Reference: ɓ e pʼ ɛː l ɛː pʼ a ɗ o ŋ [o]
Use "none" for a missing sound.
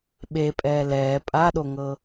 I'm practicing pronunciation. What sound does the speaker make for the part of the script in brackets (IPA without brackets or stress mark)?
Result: ɤ